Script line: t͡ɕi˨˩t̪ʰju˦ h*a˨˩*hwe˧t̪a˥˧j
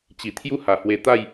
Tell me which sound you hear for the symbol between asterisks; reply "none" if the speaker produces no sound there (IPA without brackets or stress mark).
a˨˩